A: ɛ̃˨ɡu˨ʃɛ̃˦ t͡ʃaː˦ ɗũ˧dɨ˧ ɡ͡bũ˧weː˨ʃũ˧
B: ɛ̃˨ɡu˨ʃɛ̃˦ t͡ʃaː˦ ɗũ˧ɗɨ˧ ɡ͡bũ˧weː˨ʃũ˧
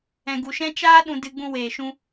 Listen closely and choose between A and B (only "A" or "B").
A